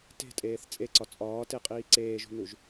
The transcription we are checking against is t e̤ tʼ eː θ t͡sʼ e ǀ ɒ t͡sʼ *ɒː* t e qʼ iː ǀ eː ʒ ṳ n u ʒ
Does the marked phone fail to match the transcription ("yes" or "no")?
no